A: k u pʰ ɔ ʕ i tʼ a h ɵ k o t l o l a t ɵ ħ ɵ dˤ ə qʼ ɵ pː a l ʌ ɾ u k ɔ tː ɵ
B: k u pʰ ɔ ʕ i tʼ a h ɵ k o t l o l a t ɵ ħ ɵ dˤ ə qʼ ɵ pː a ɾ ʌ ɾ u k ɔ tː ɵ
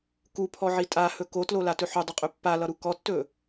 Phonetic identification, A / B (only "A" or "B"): A